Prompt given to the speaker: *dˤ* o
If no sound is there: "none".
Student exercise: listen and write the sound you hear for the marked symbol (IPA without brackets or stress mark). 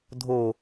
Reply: dʱ